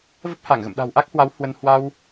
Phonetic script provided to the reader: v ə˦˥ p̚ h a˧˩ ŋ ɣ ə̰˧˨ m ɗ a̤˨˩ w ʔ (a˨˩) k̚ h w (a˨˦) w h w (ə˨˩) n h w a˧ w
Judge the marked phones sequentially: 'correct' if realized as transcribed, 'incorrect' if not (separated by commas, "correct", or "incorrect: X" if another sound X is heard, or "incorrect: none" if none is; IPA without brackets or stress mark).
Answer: incorrect: a˦˥, correct, incorrect: ə˧